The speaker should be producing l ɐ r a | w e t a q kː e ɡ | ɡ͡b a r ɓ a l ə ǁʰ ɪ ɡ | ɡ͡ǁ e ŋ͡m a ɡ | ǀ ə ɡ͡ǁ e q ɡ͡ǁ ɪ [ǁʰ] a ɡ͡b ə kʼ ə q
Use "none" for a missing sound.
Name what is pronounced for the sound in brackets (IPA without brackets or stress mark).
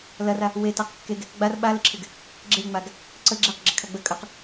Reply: kʰ